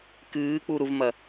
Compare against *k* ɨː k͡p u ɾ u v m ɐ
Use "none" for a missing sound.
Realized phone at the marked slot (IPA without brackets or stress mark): k